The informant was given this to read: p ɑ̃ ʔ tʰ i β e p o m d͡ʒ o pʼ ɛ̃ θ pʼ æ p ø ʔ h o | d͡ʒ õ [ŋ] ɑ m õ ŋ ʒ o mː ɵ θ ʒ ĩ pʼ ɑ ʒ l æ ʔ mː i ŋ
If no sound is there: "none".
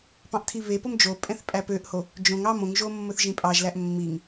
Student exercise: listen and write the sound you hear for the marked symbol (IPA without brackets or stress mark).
ŋ